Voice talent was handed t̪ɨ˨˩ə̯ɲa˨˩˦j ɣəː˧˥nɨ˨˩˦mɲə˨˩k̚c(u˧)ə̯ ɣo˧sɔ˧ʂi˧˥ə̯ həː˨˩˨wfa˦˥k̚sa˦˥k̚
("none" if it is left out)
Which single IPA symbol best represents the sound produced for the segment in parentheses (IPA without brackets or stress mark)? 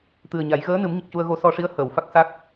u˧